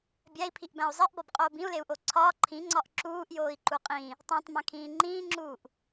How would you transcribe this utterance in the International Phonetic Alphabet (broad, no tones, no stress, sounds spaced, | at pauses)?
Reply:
bʲ æ i̯ pʰ i ʔ b æ̃ u̯ zˤ e ʔ b ɒ b qʼ oː b ĩ u̯ l e u̯ ʔ o ǀʰ ɒː ǃʰ ĩ ŋ͡ǀ ɒ ʔ ǁ uː ʔ j oː i̯ ǃ u qʼ ĩ | tˤ ĩ tˤ m æ̃ kʰ ĩː ŋ͡ǃ ĩː ŋ͡ǁ uː ʔ